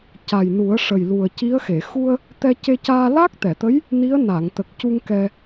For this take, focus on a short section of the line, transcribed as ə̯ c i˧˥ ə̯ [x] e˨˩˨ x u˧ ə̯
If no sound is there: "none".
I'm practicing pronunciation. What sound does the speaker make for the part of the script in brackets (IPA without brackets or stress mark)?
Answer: x